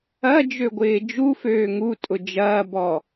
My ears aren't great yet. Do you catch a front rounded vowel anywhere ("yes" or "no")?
yes